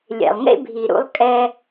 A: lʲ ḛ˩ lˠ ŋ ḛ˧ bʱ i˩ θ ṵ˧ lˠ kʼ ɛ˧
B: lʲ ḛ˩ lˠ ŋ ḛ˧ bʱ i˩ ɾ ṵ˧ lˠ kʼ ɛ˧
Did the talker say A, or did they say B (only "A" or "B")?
B